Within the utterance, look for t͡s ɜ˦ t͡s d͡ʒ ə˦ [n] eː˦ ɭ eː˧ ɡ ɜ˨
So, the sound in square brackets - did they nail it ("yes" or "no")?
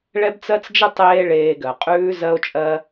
no